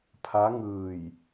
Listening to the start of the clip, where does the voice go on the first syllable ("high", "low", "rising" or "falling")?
rising